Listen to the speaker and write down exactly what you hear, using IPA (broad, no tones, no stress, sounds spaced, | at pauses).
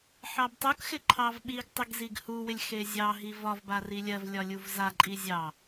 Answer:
ħ ɑ b tˤ u k x ɪ ǃʰ ɑ v ɓ i ɡ tˤ ɪ ɡ z i ɡ h u w ɪ lʲ x e zʲ ɑ ɦ i v ɒ v b a r i lʲ ɜ v lʲ ɒ lʲ u v z a ǃʼ i zʲ ɑ